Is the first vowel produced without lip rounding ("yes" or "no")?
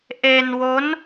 yes